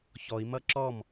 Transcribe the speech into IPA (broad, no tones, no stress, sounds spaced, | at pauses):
ç ɔ i̯ m ʌ ǁ ɔ m